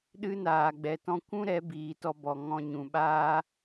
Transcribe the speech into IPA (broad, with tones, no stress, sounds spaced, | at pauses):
ɗ ɨ˦ n aː˨ ɡ͡b ɛ˨ t ɔ̃˧ kʷ ũ˦ ɾ ɛ˨˦ b iː˨ t ɔ˧ b ɔ˨ ŋ ɔ̃˧ ɲ ũ˨ ɓ aː˦